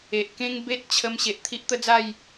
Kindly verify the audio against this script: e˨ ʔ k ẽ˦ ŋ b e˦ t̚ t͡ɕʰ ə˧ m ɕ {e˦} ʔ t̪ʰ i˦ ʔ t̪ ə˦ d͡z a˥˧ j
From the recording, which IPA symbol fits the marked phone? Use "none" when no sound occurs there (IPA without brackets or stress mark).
e˨